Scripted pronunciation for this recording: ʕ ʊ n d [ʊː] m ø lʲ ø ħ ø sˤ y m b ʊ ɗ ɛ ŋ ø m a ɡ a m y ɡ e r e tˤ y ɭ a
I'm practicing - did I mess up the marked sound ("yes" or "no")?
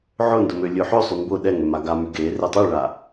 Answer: yes